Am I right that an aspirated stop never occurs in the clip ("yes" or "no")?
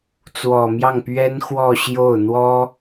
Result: yes